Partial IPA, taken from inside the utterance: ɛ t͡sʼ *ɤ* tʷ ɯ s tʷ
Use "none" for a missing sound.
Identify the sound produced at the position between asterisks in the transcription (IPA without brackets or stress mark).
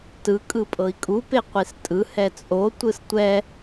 o